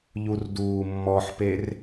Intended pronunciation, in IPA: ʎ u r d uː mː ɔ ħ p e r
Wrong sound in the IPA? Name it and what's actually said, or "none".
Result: none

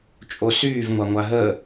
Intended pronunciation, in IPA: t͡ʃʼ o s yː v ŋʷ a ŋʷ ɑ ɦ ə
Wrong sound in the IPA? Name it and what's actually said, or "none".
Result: ɑ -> a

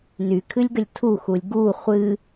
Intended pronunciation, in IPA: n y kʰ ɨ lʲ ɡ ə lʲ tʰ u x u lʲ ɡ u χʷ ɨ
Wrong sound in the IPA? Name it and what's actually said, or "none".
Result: none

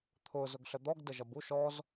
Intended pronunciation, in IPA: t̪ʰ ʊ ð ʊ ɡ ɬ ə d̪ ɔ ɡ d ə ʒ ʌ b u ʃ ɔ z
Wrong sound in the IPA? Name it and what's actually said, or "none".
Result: ð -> z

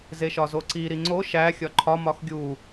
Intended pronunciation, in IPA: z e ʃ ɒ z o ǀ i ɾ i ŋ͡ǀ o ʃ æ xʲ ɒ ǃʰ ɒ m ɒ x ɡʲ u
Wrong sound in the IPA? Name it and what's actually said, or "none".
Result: none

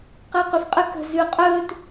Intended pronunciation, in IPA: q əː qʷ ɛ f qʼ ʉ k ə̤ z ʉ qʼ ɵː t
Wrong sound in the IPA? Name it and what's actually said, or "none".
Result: none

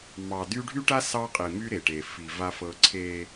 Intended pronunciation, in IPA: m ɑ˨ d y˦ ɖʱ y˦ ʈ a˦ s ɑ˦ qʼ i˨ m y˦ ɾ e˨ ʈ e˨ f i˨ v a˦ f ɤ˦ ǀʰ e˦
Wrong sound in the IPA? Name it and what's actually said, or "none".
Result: none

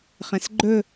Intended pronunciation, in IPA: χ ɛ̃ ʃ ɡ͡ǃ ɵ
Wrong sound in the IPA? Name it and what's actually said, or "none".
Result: ʃ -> s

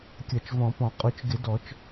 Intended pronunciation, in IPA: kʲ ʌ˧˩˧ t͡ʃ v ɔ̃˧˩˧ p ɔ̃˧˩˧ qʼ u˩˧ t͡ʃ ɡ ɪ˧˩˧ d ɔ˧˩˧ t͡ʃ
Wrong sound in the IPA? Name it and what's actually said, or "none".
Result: none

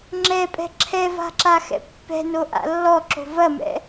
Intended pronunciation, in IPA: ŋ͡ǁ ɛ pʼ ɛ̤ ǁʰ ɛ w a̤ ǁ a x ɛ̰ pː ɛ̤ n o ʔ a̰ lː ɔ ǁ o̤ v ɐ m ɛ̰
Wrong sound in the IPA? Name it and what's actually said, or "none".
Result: w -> v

